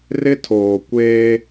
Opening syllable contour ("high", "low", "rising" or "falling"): high